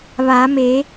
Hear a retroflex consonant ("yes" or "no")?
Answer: no